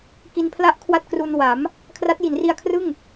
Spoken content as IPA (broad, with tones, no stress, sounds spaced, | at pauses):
k i˧ n pʰ l a˥˩ ʔ kʰ w a˥˩ t̚ k r u˧ n w a˩˦ m | kʰ r a˦˥ t̚ j i˩˦ n r i˧ a̯ kʰ r ɯ˥˩ ŋ